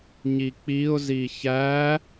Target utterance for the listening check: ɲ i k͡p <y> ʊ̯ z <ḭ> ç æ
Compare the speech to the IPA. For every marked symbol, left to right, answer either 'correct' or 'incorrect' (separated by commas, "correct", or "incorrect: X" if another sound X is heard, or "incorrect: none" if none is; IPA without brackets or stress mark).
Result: incorrect: i, incorrect: i